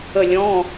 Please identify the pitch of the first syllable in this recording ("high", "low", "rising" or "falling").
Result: falling